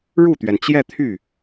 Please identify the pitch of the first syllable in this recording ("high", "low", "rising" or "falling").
falling